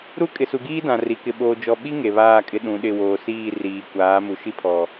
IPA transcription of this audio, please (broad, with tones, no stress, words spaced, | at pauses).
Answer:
ɾu˦kʼɪ˨su˨ɡiː˦ dã˨ri˨ kɪ˨ɓoː˨ d͡ʒɔ˨ɓi˦ ŋe˨βaː˦˨kʼɪ˦ ɗũ˨˦ɗɪ˦˨ woː˨siː˦˨ riː˨ kʷaː˨˦mu˨ ʃi˦pʰɔ˨